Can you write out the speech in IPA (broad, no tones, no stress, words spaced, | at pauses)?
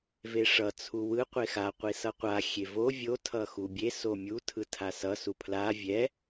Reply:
veʂʌ t͡sʰuwɯ qʷexa qʷisʌqʷa xʲevo vʲo tʰʌxubʲe somʲu tʰɯtʰasʌ supʰla vʲɛ